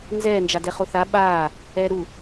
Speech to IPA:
n z ɛː n d͡ʒ a d ɛ χ o θ a ɓ aː | ɛː ɾ u

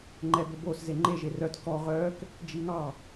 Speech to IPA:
ŋ͡ǃ ɛ b ɵ b o s z e ŋ͡ǃ e ʒ e r œ t k ɔ ʁ œ k | d͡ʒ i ŋ ɑ

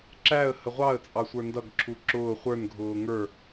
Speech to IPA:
ǁ æ ə̯ h ə ʁʷ ɑ ə̯ t͡sʼ ɑ sʷ ə˞ n d ʌ ɡ ǁʰ u ǁ ʊː χʷ ə˞ n ɡʱ ʊː ŋ ə˞

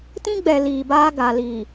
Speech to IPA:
t ĩ˦ ɡ͡b ɛ˨ l iː˨ b aː˦ ɡ a˨ l i˨

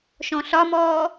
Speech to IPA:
ʃ ɔ̃ ɬ ɒ m ɔː

